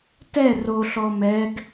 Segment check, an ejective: absent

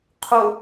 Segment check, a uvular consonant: present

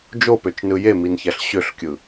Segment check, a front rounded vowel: present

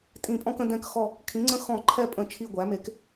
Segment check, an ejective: present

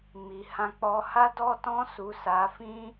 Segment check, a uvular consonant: absent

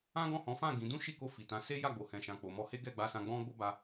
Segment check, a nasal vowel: present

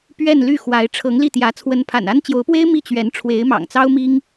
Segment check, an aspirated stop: present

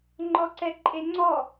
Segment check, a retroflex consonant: absent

